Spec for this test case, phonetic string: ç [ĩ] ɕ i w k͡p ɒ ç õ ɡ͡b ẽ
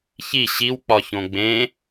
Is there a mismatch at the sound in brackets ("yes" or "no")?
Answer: yes